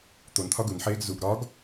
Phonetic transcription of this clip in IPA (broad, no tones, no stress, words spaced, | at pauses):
t̪ont̪ʰɒ ɡunħeːɡ zuɡ ɾɒɡ